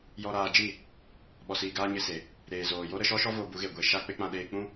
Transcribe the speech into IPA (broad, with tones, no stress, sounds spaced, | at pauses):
j ɔ˧ ɾ aː˧ d͡ʒ i˦˨ | ɓ ɔ˨ s iː˨ ɡ aː˧ ɲ e˧ s e˨ | ɾ eː˨ z oː˨ j o˦ ɾ ə˧ ʃ ɔ˦ ʃ ɔ˦ v o˧ b u˨˦ ɣ e˨ ɡʷ e˧ ʃ a˧ k͡p e˧ k͡p ã˧ ɗ eː˧ k͡p ũ˦